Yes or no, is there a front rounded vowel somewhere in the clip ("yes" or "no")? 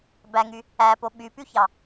yes